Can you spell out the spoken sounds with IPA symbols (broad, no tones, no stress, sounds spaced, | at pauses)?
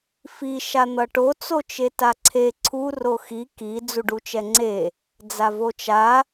f i ʃ a n̪ ʌ ʈ o t͡s o t͡ʃ e t a ǀʰ e ǀʰ u r o x i k i d͡z u ɖ u t͡ʃ ɛ ŋ͡ǀ e | d͡z a v o t͡ʃ a